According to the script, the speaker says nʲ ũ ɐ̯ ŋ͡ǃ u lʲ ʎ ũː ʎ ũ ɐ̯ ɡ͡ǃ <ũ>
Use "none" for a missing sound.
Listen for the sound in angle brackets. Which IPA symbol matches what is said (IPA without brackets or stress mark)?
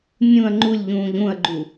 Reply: u